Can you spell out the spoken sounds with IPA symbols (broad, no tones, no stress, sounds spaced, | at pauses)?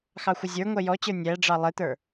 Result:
x ɑ xʷ ə zʲ ə˞ ŋʷ ɛ j ɔ t͡ɕ ə˞ nʲ æ ɖ͡ʐ ɑ lˠ ɪ t̪ ə˞